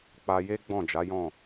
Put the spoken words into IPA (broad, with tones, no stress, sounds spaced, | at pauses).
k͡p a˧ j e˦ ɡ͡b ɔ̃˦˨ d͡ʒ a˨˦ j ɔ̃˦˨